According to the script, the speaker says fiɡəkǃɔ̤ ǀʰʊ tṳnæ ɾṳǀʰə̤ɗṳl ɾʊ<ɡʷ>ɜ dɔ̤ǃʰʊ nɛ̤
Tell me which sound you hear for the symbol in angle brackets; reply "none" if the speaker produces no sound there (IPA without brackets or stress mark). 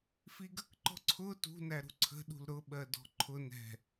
ɓ